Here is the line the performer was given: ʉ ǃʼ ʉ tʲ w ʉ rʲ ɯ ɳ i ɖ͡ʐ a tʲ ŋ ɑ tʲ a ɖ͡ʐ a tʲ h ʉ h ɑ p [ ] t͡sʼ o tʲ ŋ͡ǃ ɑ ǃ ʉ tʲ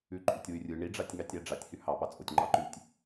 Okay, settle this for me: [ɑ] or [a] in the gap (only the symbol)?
ɑ